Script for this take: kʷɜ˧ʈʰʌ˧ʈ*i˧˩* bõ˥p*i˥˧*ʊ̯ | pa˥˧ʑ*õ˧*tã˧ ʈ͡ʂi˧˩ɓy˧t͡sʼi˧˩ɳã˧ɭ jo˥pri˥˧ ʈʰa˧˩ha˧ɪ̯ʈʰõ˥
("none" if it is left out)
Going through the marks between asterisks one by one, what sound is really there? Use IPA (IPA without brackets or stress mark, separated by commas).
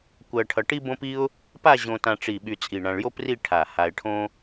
i˥, i˥, õ˧